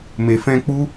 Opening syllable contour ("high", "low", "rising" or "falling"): low